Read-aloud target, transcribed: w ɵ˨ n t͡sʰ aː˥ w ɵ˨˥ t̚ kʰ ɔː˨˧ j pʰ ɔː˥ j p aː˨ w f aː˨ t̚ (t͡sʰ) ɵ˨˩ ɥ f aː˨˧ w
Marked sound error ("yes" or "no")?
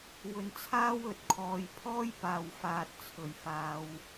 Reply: no